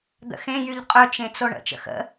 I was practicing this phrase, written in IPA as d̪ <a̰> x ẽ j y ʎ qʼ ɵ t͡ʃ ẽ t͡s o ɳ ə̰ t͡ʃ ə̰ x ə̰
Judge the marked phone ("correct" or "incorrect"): incorrect